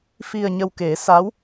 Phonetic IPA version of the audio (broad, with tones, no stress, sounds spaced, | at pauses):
f i˨˩ ə̯ ɲ ə˨˩ w k e˨˩˦ s a˧˥ w